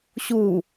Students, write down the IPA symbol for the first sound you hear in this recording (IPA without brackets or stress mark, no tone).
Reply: ɕ